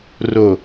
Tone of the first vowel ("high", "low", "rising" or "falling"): low